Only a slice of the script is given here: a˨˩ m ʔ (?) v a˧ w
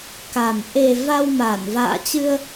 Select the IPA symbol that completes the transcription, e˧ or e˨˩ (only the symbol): e˨˩